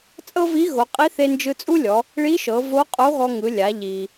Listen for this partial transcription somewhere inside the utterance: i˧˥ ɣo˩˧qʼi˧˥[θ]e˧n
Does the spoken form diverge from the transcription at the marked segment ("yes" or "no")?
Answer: no